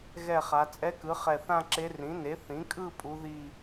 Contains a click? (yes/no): yes